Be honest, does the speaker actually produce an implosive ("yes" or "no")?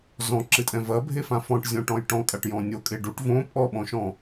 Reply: yes